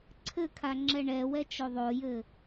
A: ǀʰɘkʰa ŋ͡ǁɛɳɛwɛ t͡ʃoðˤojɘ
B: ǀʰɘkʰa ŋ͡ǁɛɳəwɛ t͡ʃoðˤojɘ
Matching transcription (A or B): A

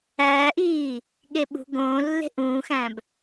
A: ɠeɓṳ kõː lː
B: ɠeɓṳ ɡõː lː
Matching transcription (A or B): B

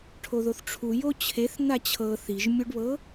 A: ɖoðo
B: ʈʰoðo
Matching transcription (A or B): B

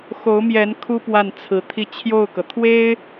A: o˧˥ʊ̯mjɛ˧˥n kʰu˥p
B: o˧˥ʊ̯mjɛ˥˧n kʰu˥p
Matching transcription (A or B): A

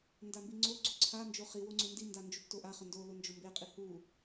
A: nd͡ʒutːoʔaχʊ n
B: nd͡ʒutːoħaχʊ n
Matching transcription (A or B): A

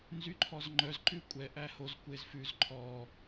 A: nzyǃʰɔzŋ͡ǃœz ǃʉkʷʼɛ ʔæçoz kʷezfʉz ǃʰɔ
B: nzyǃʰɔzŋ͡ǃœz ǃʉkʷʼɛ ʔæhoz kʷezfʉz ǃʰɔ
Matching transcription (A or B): B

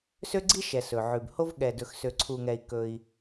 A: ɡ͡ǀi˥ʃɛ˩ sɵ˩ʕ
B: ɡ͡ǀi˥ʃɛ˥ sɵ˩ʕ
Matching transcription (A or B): A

